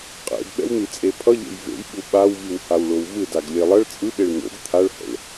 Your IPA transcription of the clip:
qʼḛdɓɛ̰wn̪it͡sʼe pʰʌʎḛj vḛjɓu ɓaw viwhawɭowvɯd aɡlʲelˠʌɭ t͡sʼɯɓeɭ n̪o̰ɡ t̪ʰaɭhɛ̰ɭ

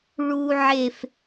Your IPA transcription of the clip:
ɭu˦ʕe˦f

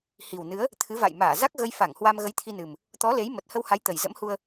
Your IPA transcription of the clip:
hi˨˩wnɨ˨˦ə̯ | t̪ʰɨ˨˦va̰˧˨jmaː˧˩ za˦˥k̚ɣə˧jfa˧˩ŋhwa˧m ɣə˨˦jt̪ʰi˧nɨ˨˩m | t̪ɔ˨˦le˨˦j mə˨˩t̚hə˧wha˨˦j t̪ə˨˩jzə̰˧˥mhu˧ə̯

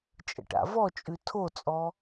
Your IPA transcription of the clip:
t͡ʃʼə̰ʈa̰vɔt͡ʃʼʉ tʰot͡sʼɔ

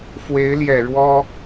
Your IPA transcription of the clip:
fwe˧˥ɪ̯ljɛ˨˩ ɻwɔ˥

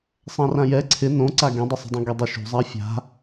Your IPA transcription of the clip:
sˤãrãjɛ ǀʰɪ nõǀa ɡẽdˤɛsˤṳdˤõ ɡɛdˤɛʃṳ zˤafʲa̤

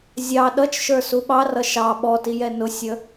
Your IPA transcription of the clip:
zʲɑ ɗʌt͡ʃʃə˞ suɓɑrʌ ʃɑ ɓɔtijɛ nʊsʲə

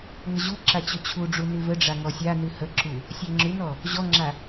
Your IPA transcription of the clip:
ŋəʑuǁa t͡ɕɵt͡ɕʰuɖ͡ʐu nʉvəɖ͡ʐa ŋɔsʲanʉ həǁu | sʲaŋ͡ǁʉnɔ | ʑɔŋ͡ǁa

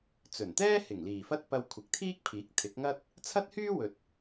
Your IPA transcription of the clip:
t͡sɵ˨˩nt̪ɛː˥hɪ˨˩ŋ liː˨˩fɐ˥t̚pɐ˧w kʷʰɪ˨˥k̚t̪ʰiː˥k̚pʰiː˨˥k̚ t̪ʰɪ˨˥k̚ŋɐ˥t̚ | t͡sʰɐ˥t̚hyː˥ wɵ˨t̚

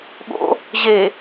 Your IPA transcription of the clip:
ɠo̰ | ʑe

